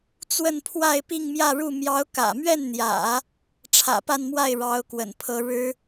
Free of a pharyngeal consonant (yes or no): yes